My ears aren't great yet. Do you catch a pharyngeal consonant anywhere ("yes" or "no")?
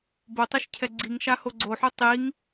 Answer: yes